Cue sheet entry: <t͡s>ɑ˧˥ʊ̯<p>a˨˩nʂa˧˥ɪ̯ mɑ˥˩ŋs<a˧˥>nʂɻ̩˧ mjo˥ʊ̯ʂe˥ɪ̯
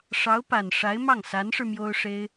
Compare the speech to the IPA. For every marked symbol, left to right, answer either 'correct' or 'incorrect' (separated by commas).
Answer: incorrect, correct, correct